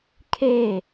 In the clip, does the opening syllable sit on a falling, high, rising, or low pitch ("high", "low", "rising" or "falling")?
falling